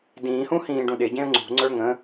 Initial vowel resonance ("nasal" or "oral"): nasal